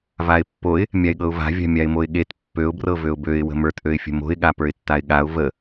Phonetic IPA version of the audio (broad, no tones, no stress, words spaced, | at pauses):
vaɪ̯pːoɪ̯ | mʲaɪ̯ɠɤʊ̯va̤ vʲa̤mʲaɪ̯moɪ̯ɠet pːøʊ̯ brɤvøʊ̯bøɪ̯ wə̤mə˞t ʔøɪ̯fʲə̤mo̤ɪ̯ ɠapə˞ɪ̯tːaɪ̯ɠaʊ̯ və